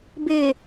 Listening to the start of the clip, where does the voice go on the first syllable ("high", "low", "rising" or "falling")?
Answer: low